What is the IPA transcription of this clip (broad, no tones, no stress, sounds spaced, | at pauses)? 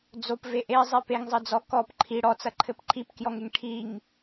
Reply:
d͡z o p v e ʔ e zˤ e p e ŋ zˤ ɘ d͡z ɔ k ɔ p ǃʰ i ɽ ɔ t͡s ɐ ǃʰ ɘ p ǃʰ i p k j ɔ ŋ e ŋ ʈʰ i ŋ